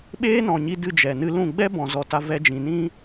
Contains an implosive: yes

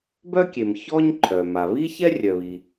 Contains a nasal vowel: no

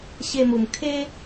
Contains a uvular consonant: no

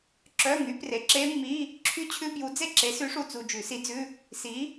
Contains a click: yes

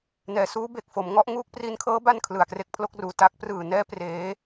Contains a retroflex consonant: no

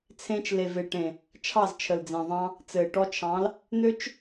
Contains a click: no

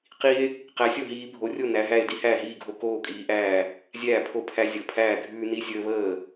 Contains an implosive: no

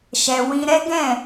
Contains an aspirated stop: no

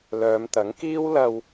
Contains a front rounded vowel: yes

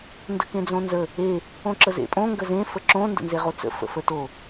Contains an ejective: yes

